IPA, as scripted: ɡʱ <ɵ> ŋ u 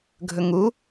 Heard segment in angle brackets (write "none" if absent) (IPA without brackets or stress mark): ɵ